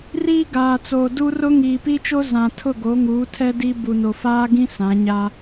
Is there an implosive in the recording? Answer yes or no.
no